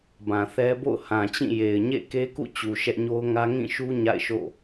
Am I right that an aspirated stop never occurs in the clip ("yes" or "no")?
yes